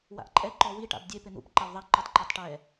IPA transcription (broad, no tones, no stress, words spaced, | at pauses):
wa̰ʔǃʼɛ ǃɔwi ʈa̰bdʲe pɪn̪ṵp ǃawðˤɛ ǃutˤǃatˤʈɛ